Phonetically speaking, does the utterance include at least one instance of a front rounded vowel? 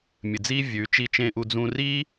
no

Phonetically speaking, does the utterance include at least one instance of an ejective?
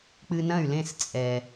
yes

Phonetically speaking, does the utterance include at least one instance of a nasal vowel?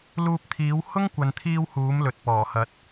no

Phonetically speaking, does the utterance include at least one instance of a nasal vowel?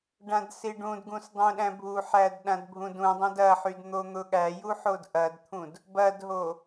yes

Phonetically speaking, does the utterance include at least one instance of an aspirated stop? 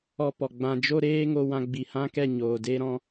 no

